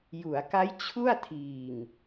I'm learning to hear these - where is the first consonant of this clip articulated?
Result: palate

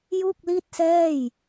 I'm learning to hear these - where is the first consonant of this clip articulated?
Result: palate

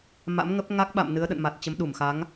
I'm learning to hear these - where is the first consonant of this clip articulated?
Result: lips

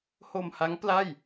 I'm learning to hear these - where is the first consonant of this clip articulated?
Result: throat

